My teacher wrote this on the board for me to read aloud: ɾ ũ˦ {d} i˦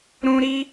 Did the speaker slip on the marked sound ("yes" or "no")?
yes